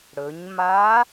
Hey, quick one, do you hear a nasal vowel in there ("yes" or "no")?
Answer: no